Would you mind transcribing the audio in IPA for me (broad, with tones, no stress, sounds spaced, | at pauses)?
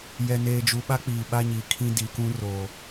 j ɛ˨ n eː˨ d͡ʒ u˨ ɓ a˦ k͡p iː˨ ɓ a˦ ɲ iː˨ kʰ ĩ˦ d i˨ k ũ˦ r oː˨